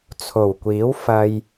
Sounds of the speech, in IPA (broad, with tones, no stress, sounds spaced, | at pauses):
t͡sʰ o˨˩ w kʷ iː˨˥ w f ɐ˨ j